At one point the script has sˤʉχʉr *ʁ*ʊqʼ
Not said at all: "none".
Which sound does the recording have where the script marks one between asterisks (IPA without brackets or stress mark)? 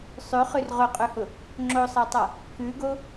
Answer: ʁ